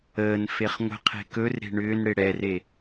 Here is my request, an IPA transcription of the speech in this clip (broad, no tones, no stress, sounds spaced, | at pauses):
əː n f e χ ŋʷ ə̤ qʰ e̤ k ɵ r ɾ e̤ ɳ ʏː n ɽ ɪ ɽ ɛ r e